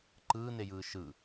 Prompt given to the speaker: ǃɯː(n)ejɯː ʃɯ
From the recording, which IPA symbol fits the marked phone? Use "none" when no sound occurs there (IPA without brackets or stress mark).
n